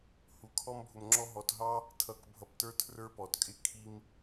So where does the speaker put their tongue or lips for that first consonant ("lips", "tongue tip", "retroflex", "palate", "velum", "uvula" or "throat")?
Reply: throat